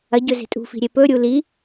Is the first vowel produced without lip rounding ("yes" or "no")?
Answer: yes